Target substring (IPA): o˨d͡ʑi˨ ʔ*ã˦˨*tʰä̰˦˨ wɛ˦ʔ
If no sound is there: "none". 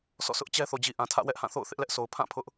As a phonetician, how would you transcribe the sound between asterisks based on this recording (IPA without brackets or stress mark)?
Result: ã˨